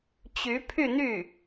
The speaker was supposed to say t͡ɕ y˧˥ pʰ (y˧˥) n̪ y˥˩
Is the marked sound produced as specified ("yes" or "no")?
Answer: no